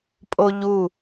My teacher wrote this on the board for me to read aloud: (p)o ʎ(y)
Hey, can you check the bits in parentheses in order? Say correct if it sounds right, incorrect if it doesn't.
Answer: incorrect: pʼ, incorrect: u

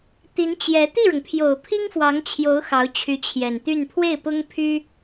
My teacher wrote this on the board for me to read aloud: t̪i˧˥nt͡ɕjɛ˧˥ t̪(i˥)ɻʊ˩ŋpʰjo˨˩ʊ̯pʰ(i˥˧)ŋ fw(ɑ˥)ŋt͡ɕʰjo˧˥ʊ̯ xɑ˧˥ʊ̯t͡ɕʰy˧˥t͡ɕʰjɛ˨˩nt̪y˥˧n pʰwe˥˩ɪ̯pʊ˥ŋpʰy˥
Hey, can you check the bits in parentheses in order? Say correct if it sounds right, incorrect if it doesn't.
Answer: incorrect: i˥˩, incorrect: i˥, incorrect: ɑ˧˥

